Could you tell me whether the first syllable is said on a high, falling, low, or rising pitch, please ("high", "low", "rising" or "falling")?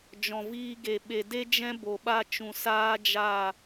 low